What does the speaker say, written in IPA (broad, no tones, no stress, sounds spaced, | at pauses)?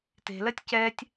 t e̤ l ɜ tʲ c ɛː tʲ